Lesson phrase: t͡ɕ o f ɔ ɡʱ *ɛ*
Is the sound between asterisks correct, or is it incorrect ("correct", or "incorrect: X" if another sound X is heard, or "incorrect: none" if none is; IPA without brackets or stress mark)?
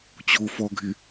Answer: incorrect: ɪ